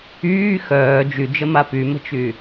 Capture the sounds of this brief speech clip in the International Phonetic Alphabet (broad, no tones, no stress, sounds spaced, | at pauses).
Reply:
yː x œː d͡ʒ y d͡ʒ ə m a p y m ə̤ t͡ʃ y